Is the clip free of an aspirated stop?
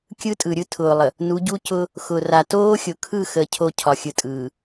no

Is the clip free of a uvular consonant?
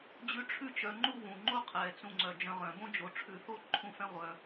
no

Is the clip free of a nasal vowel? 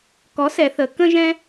no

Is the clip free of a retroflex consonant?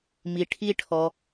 no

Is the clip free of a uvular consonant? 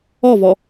yes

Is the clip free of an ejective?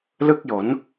yes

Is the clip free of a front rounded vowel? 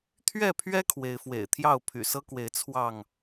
no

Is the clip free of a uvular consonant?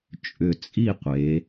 no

